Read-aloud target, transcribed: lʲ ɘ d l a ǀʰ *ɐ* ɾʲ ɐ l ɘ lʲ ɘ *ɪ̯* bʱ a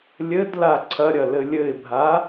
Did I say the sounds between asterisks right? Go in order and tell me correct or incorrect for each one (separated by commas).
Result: correct, correct